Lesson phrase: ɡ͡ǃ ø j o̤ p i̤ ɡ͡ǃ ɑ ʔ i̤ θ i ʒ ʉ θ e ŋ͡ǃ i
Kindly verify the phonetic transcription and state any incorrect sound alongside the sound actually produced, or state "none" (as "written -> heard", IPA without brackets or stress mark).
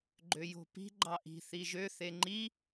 ʉ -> ø